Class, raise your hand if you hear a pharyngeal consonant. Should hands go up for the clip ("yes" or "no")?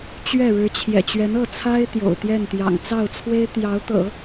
no